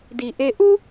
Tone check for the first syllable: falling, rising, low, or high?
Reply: low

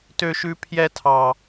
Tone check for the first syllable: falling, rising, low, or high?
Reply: high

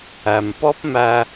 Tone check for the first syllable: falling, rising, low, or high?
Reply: low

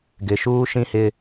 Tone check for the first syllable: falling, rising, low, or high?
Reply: low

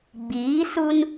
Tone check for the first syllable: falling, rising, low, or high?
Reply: rising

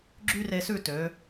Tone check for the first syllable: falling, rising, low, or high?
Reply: high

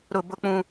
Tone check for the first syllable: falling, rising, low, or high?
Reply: low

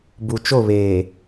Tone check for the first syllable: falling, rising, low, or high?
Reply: low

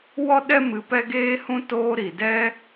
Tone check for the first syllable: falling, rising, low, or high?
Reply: high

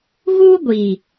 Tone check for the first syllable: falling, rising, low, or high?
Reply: high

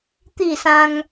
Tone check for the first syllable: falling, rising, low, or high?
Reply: falling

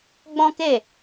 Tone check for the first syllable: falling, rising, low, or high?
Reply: high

